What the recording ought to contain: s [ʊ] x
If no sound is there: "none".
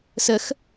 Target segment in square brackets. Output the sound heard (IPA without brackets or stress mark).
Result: ə